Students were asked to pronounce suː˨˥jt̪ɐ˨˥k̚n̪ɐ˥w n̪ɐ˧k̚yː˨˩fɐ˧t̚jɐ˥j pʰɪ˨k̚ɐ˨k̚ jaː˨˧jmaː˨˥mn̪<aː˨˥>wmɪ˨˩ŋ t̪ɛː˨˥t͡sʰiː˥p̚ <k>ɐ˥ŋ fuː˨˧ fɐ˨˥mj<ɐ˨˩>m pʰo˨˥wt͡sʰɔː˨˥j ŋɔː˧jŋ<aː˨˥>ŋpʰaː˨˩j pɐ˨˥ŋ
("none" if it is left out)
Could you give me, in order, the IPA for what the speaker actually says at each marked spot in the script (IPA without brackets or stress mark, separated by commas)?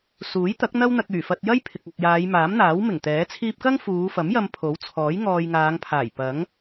aː˨˥, k, ɐ˧, aː˨˧